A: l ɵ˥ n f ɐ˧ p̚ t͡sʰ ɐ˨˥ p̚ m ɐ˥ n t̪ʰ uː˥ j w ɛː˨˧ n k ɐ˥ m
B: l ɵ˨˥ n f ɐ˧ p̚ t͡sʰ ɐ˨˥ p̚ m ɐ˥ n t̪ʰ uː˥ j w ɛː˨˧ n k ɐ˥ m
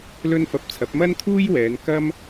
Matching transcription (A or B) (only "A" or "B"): A